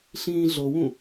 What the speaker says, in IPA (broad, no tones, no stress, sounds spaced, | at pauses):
ɬ ĩː ɮ o w ũ